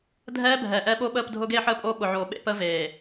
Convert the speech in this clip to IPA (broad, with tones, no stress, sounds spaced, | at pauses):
dʱ ɛː˦ bʱ ɛ˨ ʔ ɛ˦ ɓ o˦ ɓ əː˦˨ p dʱ ʊː˦ ɡ eː˦ ħ əː˦ pʼ oː˦ ɓ ʊ˨ ʕ oː˨ ɓ ḛ˦ p əː˦ v eː˨